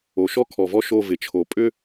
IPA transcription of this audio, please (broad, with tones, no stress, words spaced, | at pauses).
o˨ʃɔ˦kʰɔ˨ vɔ˦ʃo˦˨ vɪ˨t͡ʃʰo˨pʼʏ˦